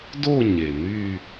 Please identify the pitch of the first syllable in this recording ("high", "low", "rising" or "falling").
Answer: falling